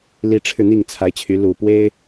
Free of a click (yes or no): yes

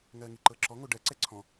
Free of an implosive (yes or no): yes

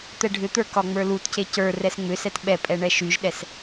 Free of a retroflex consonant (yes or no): no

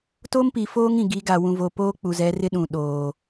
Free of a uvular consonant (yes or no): yes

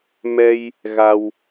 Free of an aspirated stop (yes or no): yes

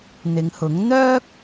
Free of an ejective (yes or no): yes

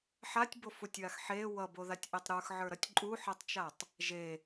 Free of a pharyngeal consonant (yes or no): no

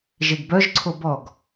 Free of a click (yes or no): no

